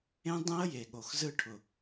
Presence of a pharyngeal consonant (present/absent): absent